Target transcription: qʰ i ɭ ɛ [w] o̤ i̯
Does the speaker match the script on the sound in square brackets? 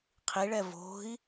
no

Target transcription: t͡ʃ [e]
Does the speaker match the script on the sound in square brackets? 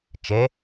yes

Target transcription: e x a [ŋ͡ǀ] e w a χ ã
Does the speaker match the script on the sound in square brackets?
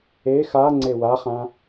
yes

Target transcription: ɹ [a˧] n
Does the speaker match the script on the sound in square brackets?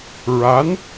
no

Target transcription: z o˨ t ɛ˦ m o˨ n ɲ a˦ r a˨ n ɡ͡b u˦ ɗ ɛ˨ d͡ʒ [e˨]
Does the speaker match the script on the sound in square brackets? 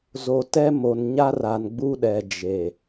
yes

